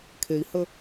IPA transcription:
kʰ e i̯ h ə

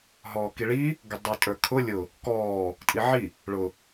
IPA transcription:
ɦ ɔː k i ɭ i | ɡ ʊ dˤ ə˞ tʼ ə˞ kʰ ʊ lʲ ʊ | k ɔː | tʼ i ʕ i | ɭ ʊ

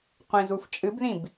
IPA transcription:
qʷ ẽ z u f t͡ʃʼ ɨ b ð ĩ b

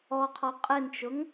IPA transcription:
ɔ qʰ ɔ qʼ ɪ n t͡ʃ ʊ ŋ

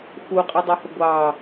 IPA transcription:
x u qʼ i dˤ u h ʊ ɡʷ ɑ

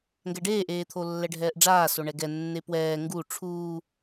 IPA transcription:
ŋ ɡ ɛ ɖ eː ʔ eː t̪ʰ o lː ɛ ɖʱ ɛː ʔ ɖ͡ʐ aː s o ɳ ɛ ɡ ɛ nː e p w ɛː ŋ ɡ u ʈ͡ʂʰ uː

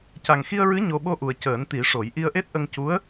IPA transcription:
c a˨˩ ŋ x i˧ ə̯ ɹ ɨ˧˥ ɲ o˧ ɓ o˧ ʔ u˨˩ ə̯ c əː˨˩˦ n t̪ i˨˩˦ ʂ o˨˩˦ j ʔ i˧ ə̯ ʔ e˦˥ t̚ ʔ ə˧ ŋ c u˧˥ ə̯

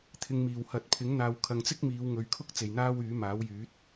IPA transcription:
t̪ʰ ɪ˨ ŋ m iː˨˩ w h ɐ˨˥ t̚ pʰ ɪ˨˥ ŋ n̪ aː˨ w kʰ ɐ˨ ŋ t͡s ɪ˥ k̚ m iː˨˧ w ŋ ɵ˨ ɥ kʰ ʊ˥ k̚ t͡s e˨ j n̪ aː˥ w yː˨˥ m aː˨˥ w j yː˨˥ t̚

